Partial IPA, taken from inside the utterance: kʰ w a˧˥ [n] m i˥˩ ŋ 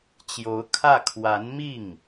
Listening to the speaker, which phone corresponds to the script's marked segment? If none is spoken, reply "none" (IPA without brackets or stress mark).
n